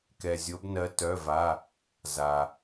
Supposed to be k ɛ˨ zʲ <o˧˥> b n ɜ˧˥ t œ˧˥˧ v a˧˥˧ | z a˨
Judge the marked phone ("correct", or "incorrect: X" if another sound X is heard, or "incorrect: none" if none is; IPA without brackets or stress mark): correct